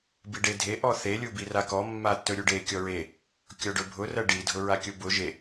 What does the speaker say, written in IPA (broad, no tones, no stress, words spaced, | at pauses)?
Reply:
biɖedʱe ʔɔθe lʲubirakɔ mːatːɵɾʲuɖe kʲɔɹe | kʲɔɖɵbʱʊ rɜɖi dʱʊɹakʲʊbʊ ʒe